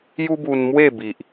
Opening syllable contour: high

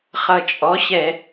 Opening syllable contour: low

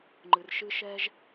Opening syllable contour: low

